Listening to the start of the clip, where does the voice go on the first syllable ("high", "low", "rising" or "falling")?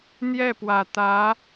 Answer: falling